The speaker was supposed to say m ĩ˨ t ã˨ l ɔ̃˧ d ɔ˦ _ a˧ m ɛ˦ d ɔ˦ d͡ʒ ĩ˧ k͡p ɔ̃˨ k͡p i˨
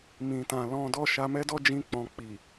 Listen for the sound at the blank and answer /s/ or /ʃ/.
ʃ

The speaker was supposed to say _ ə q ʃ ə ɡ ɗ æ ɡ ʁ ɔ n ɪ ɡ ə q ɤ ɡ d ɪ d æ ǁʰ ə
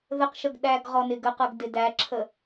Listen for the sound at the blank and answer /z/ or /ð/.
ð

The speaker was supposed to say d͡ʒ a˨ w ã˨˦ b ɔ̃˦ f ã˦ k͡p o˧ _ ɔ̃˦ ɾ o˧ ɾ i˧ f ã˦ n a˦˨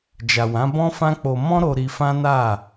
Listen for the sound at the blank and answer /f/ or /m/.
m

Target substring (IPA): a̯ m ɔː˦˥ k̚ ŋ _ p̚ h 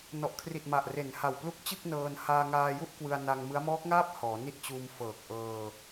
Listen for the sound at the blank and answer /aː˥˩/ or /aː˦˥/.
aː˥˩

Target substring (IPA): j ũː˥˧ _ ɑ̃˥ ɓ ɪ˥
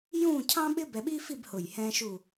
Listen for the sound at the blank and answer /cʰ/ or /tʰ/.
cʰ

